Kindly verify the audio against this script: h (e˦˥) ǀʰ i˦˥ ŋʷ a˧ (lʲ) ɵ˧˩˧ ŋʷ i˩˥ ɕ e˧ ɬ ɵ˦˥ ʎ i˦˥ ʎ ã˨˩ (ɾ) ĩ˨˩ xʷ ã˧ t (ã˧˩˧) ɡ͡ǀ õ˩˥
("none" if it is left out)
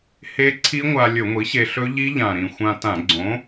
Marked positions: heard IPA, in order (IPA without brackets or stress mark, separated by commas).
e˦˥, lʲ, ɾ, ã˧˩˧